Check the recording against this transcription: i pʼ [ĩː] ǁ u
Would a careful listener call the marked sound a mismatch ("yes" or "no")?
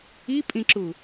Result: yes